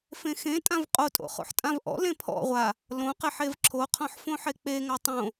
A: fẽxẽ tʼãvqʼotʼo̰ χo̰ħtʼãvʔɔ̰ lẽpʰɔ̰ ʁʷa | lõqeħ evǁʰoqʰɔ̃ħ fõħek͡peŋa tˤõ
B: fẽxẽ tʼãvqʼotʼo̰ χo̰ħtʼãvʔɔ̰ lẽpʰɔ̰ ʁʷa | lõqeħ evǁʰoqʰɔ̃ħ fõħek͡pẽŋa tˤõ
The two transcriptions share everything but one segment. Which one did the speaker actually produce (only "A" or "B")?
A